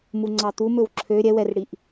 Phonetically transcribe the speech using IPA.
m u ŋ͡ǀ ɑ t̪ u m ɵ w ǁʰ ø ɾʲ ɛ w ɛ r ɽ i ʔ

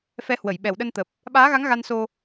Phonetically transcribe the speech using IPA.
f ɛ˨˦ h w ə˧˩ j ɓ ɛ˧˩ w ɗ ə˧ n t̪ ə˨˩ p̚ | ɓ aː˨˦ ɣ a˨˦ ŋ ɣ a˧ n s o˧

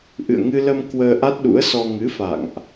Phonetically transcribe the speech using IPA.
ʔ ɨ̰˧˨ ə̯ ŋ ɨ˧ l ə˧ m k w əː˧ ʔ a˦˥ t̚ ɗ ṵ˧˥ ə̯ s ɔ˧ ŋ ɨ˨˦ f a̰˧˨ ŋ ʔ

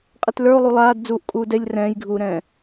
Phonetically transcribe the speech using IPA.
qʼ i t l ə˞ o̯ lˠ u lˠ aː d d͡z uː ʔ kʼ uː d ɛ ʎ r ɛ̃ː j ɡʱ uː ɾ ɛ̃ː

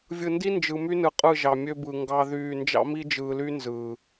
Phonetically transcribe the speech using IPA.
vʲ ɯ˨ n d i˦ n d͡ʒ ɯ˨ m y˦ n ɯ˨ qʼ ɯ˦˨ ʒ ɑ˨ mʲ ø˦ b ɯ˨ ŋ ɡ ɑ˦ ð yː˦˨ n d͡ʒ ɑ̰˦ m i˦ d͡ʒ ɯː˨ l y˦ n z ɯː˨

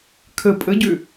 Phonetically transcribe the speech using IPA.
kʰ ə pʼ ə ɟ ø

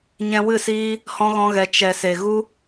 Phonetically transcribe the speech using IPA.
ɲ ɛ̃˧ w ɨ˦˨ s iː˦ | h ɔ̃˦ ɣ ɔ̃˦ ɣ ɛ˧ t͡ʃ ɛ˨ s e˨ ɣ u˦

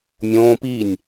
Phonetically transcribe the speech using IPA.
mʲ õː p i nʲ

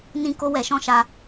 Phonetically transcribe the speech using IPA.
n ĩ˦ k o˦ w ɛ˧ ʃ ɔ̃˦ ʃ a˧

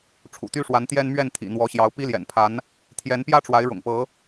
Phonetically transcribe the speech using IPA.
ʈ͡ʂʰ ṵ˨˩ t̪ y˦ ʂ w a˨˦ n t̪ j ɛ˦ n m ɥ ɛ˥˨ n t̪ʰ ḭ˨˩ n̪ w ɔ˨˦ ɕ j ɑ˨˦ ʊ̯ p i˦ l j ɛ̰˨˩ n pʰ a˨˦ n | t̪ʰ j ɛ˨˦ n p j ä˦ ʈ͡ʂ w a˨˦ ɪ̯ ɻ ʊ̰˨˩ ŋ p ɤ˨˦

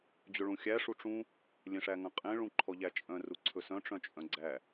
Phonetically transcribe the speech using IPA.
d͡ʑ ɵ ɭ ũ xʲ æ ʂ u ʈ͡ʂ ũ | lʲ ẽ ʂ æ ŋ œ̃ qʼ ẽ ɭ ũ ǃʰ ɔ ʎ æ t͡ʃʼ œ̃ r u ǀʰ ɵ s œ̃ ʈ͡ʂ œ̃ t͡ʃʼ œ̃ ɡ͡ǀ æ

